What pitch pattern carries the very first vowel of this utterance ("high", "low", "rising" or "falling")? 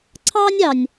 high